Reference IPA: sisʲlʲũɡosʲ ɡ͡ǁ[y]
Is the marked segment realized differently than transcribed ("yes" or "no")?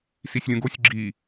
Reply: yes